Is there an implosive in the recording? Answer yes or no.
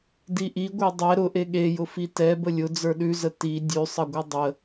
yes